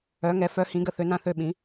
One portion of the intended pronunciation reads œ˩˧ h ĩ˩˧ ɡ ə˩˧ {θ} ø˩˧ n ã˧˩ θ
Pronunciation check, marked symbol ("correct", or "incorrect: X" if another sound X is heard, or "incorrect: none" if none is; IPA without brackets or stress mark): correct